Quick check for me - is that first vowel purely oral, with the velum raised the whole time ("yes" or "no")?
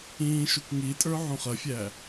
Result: no